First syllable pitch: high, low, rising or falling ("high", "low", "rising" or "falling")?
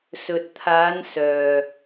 low